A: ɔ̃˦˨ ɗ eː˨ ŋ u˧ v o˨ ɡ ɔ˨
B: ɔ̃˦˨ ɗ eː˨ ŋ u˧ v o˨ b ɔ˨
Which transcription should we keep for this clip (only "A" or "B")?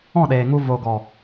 A